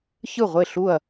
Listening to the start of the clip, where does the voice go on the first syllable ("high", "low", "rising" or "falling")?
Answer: falling